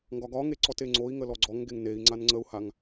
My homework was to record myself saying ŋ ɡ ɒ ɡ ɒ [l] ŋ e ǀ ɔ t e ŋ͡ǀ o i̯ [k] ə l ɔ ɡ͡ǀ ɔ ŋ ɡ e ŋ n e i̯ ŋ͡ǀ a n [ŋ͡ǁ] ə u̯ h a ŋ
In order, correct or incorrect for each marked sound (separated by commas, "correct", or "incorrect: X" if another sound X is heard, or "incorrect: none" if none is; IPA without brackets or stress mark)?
incorrect: none, incorrect: ŋ, incorrect: ŋ͡ǀ